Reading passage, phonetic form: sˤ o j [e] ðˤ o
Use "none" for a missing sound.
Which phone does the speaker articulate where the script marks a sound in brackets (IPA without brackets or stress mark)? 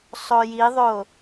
i